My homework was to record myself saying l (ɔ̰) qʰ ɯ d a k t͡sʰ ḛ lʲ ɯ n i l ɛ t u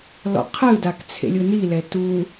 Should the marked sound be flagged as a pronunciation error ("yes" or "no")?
no